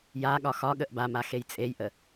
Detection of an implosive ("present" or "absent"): present